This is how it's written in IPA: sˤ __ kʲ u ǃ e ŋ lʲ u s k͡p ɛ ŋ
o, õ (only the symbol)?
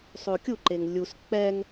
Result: o